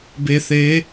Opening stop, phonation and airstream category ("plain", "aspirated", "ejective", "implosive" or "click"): plain